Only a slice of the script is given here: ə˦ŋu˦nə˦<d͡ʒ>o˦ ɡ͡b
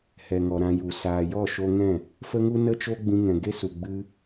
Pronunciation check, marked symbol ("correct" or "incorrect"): incorrect